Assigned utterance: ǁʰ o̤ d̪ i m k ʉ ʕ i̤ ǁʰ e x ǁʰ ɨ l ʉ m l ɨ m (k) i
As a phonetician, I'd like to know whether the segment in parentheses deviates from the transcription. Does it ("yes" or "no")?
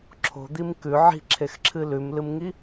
yes